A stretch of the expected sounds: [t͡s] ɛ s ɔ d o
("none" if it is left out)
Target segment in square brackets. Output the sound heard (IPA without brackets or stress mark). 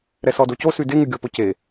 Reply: ɾ